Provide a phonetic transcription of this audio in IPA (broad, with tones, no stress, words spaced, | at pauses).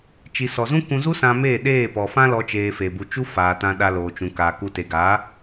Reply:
t͡ʃi˨sɔ˨zũ˦ kũ˧zu˦ sã˧meː˦˨ ɗeː˦˨ pɔ˨fã˦lɔ˧ t͡ʃeː˧fe˨bu˧ t͡ʃu˦faː˨tã˧ ɗa˧loː˨t͡ʃũ˨ kaː˨ku˧ te˨ɡa˨˦